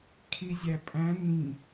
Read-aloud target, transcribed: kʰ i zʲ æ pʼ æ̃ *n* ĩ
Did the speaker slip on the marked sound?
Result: no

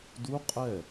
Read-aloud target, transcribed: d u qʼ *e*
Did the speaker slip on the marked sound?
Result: yes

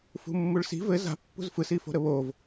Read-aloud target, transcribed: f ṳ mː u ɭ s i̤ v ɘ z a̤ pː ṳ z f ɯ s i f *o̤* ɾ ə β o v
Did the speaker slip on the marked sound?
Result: no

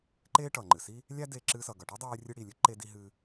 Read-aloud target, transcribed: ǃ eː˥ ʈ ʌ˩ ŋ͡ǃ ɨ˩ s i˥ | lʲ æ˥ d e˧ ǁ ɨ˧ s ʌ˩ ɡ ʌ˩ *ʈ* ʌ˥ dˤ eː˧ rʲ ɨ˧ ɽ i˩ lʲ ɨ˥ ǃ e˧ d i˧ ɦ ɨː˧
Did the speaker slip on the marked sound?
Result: no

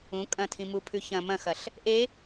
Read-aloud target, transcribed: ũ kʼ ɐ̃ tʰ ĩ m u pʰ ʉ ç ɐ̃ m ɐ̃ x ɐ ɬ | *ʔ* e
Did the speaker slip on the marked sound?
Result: no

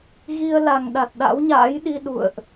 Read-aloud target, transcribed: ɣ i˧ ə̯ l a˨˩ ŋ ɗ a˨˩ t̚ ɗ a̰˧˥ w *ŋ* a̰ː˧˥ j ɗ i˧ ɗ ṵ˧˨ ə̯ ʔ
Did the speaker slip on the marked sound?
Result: yes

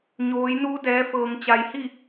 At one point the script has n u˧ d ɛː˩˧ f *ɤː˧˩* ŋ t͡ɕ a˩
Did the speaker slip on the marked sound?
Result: yes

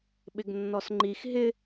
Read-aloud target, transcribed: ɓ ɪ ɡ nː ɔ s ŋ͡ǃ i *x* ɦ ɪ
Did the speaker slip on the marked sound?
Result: no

